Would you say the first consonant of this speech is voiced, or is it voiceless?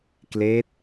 voiceless